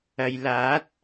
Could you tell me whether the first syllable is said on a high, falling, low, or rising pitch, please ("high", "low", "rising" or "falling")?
low